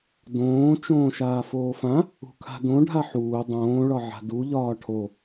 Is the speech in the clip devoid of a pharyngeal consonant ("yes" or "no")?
no